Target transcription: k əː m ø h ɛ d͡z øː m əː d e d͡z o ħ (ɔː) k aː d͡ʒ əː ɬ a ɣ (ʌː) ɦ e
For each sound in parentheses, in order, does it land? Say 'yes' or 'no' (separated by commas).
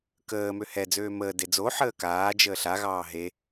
no, no